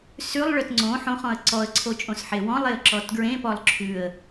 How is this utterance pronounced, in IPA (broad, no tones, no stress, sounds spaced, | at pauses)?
s ʉ lˠ ɭ œ t ŋ͡ǀ õ ħ õ χ ɔ̃ ə̯ ǀ ɔ ə̯ ǀʰ o t͡ʃʼ õ s ħ e w ɔ̃ lˠ e ə̯ ǁ ɔ t ɡ ɹ ẽ p ɔ lˠ ǁʰ ʉ ə̯